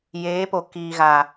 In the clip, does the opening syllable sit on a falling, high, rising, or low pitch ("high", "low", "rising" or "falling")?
rising